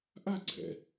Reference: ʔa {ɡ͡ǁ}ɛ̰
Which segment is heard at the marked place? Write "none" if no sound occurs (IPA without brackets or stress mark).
ɡ͡ǀ